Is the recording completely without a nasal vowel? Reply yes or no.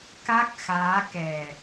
yes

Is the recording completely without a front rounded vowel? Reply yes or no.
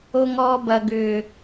no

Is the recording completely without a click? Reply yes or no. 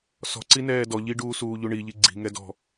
no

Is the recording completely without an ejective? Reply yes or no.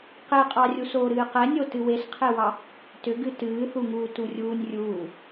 no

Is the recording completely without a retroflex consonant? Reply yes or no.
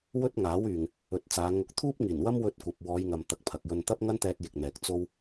yes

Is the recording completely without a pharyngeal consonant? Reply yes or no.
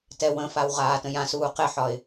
no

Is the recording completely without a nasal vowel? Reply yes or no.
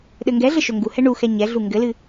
yes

